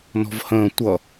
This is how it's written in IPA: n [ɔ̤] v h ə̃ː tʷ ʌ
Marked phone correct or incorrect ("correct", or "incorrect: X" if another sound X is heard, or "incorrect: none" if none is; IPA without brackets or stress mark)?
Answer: correct